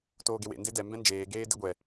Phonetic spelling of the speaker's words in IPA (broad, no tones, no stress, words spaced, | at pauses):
toːɡewḛ ndedɛ mbɛ̃nd͡ʒeː ɡeːdeɡʷɛ